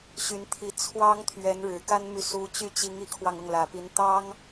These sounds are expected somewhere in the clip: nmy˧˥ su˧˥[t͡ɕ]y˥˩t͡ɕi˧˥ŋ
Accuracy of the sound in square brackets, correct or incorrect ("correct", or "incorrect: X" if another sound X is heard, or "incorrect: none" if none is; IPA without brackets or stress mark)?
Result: correct